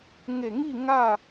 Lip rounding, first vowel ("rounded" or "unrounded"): unrounded